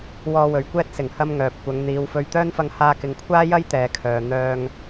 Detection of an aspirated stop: present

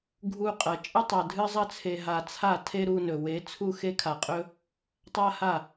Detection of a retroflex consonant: absent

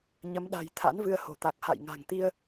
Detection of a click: absent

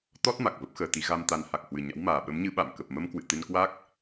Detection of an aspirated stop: absent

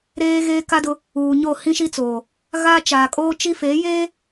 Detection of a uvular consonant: absent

